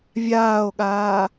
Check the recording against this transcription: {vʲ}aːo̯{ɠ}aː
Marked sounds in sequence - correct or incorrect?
correct, correct

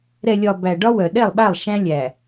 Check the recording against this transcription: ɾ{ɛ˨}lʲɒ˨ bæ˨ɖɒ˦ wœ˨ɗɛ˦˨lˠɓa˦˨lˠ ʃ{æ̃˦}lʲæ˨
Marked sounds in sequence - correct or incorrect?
correct, correct

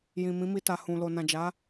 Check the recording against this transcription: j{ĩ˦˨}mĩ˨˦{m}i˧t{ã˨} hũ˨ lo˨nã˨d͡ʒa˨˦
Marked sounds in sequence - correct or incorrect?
incorrect: ĩ˨, correct, incorrect: a˨

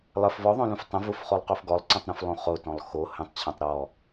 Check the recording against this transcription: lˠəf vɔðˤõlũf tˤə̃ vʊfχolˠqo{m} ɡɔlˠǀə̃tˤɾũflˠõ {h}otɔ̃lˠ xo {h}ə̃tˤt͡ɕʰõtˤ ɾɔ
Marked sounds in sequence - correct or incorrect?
incorrect: f, incorrect: χ, correct

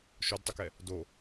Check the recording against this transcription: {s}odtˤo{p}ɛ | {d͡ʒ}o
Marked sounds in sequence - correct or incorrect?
incorrect: ʃ, incorrect: k, incorrect: d

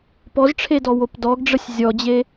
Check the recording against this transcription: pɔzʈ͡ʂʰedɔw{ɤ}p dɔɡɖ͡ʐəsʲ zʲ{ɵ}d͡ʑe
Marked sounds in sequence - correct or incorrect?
incorrect: o, incorrect: ɔ

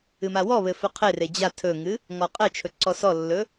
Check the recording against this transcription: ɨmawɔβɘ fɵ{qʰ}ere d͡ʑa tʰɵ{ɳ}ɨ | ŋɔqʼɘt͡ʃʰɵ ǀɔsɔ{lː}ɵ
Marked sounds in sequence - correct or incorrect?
correct, incorrect: ŋ, correct

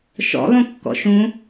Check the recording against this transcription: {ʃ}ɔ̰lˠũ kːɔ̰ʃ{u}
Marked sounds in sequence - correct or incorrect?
correct, incorrect: ũ

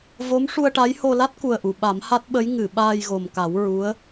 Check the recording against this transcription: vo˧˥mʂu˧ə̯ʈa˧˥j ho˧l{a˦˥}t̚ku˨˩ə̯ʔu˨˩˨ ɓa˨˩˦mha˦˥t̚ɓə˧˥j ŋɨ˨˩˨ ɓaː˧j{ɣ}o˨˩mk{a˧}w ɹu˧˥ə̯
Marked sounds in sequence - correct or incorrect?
correct, correct, incorrect: a˨˩˦

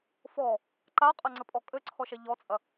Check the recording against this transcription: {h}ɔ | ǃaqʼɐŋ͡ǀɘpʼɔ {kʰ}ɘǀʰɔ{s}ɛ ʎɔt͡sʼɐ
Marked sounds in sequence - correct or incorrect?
incorrect: f, incorrect: kʼ, incorrect: ʃ

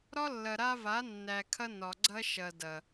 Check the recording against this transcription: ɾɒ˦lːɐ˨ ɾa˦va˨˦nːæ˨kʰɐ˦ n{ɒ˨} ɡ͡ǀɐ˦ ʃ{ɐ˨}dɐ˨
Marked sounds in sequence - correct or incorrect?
correct, correct

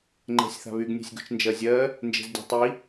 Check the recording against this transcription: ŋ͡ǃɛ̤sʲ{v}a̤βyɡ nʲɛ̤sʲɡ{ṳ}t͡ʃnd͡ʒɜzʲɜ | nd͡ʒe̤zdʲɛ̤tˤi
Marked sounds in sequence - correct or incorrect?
incorrect: θ, correct

